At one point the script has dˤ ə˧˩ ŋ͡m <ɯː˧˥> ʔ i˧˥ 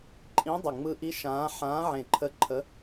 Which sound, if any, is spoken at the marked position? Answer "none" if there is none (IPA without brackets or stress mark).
ɯ˧˥